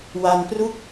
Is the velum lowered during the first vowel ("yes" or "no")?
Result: no